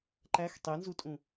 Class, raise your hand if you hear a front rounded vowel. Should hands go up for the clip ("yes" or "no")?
no